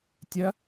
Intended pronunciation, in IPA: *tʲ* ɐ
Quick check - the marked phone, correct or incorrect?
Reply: correct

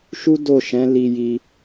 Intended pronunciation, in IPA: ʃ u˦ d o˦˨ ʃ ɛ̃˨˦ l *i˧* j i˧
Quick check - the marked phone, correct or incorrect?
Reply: correct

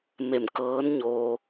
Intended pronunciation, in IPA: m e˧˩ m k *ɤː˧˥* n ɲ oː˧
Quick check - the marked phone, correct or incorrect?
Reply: correct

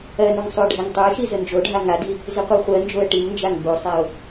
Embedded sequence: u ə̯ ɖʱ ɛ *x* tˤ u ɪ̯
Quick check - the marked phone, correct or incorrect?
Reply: incorrect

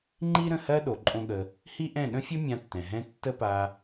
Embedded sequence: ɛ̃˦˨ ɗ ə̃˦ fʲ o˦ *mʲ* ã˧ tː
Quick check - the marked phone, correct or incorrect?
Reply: correct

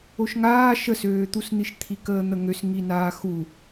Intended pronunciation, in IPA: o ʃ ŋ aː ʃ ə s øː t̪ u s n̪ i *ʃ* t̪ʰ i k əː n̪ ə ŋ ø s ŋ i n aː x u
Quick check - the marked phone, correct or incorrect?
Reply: correct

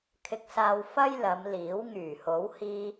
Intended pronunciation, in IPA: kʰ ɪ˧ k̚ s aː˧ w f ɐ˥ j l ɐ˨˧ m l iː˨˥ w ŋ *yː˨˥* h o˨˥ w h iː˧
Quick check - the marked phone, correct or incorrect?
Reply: incorrect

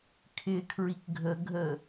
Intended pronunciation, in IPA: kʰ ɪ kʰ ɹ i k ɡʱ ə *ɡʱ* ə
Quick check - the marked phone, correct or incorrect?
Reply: correct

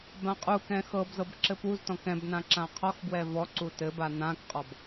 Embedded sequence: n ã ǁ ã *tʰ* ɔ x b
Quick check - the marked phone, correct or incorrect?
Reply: incorrect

